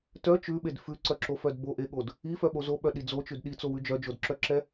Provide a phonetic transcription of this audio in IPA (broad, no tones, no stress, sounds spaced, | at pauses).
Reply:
t œ t͡ʃ ʉ ɓ e d f ʉ ǀ œ ǁ o f œ d b o ʔ e ɠ o d | i f œ ɓ o z o ɓ œ ɗ i d͡z o t͡ʃ ʉ d ɗ i t͡s o w ʉ d͡ʒ œ d͡ʒ o d ǁ œ ǁ ɛ